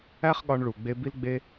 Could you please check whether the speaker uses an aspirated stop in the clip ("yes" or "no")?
no